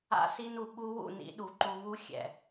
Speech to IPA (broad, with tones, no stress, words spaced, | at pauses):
a̰˧si˧nu˨ ɓu˧wṵ˦˨ nḭ˧ɗu˨ ǃu˧βu˦ xʲɛ̰˨